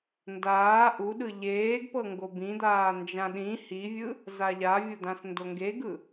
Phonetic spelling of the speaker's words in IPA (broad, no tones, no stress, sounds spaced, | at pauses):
n d aː ʔ u ɗ ɯ ʎ eː ɡ p ɤ ŋ ɡ o b ĩ d̪ aː n d͡ʒ ã ɗ ĩ h i vʲ ɯ | z a ʎ a vʲ o d̪ ã s n d o ŋ ɡ e ɡ ɯ